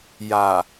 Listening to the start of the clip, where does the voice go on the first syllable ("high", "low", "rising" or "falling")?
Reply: low